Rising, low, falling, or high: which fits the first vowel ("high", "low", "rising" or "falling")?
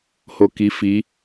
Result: low